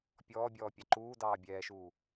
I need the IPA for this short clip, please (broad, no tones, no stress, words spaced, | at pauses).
pʲɔːbʲɔː pʲɑǃuːdɑː bʲɛːʃuː